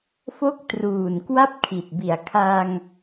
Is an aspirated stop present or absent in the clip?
present